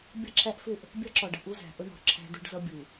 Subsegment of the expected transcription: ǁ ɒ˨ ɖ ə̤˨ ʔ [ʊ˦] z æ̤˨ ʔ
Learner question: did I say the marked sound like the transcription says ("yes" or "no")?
no